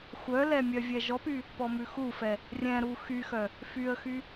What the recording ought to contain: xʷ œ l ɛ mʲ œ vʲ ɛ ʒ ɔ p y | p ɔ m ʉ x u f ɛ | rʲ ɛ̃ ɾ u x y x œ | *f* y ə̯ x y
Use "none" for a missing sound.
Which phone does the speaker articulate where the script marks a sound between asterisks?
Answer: f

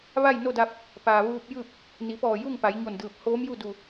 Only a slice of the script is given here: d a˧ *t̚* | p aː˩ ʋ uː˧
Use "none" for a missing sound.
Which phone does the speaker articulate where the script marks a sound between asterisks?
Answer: p̚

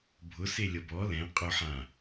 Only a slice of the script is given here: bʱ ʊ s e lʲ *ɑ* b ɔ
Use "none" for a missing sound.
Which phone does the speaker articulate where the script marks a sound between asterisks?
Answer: ʌ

